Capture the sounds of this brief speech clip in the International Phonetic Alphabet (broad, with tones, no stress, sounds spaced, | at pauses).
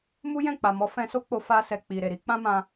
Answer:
m u˦ j ɛ̃˦˨ k͡p a˨ m ɔ˨˦ f ɛ̃˧ s o˦ k͡p o˧ f a˧ s ɛ˨ k͡p i˨ ɾ e˨ ɾ i˨˦ k͡p ã˦ m ã˧